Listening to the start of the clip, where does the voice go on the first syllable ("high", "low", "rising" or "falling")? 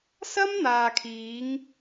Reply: high